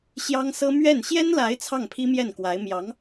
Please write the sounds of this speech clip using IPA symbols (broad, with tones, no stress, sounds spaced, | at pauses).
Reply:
ɕ j ɑ˥ ŋ s ɤ˥ m ɥ ɛ˥˩ n ɕ j ɛ˥ n l a˧˥ ɪ̯ t͡sʰ ɑ˥˩ ŋ pʰ i˥ m j ɛ˥˩ n k w a˧˥ ɪ̯ m j ɑ˧˥ ŋ